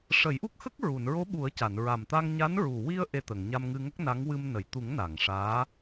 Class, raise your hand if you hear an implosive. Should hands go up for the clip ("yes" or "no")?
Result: yes